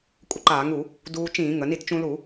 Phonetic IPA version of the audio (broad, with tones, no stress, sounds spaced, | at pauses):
kʷʼ ə˧ ǃ aː˧˩˧ ŋ u˧˩˧ | d uː˧ t͡ʃ ĩː˧˩˧ ŋ ə˩˧ n i˧ t t͡ʃ ũ˧ l u˧˩˧